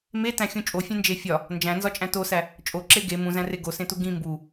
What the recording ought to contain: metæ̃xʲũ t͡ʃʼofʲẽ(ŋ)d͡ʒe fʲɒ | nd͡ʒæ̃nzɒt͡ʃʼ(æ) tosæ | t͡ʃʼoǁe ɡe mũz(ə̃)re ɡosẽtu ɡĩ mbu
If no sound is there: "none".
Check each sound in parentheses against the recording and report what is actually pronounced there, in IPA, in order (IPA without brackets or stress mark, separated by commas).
n, æ̃, æ̃